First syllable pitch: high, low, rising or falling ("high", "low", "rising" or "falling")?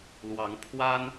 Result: rising